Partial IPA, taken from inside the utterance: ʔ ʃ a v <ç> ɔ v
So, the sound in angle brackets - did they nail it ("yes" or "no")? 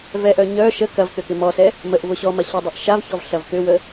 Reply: yes